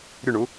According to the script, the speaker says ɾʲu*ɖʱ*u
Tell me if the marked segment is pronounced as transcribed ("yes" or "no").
no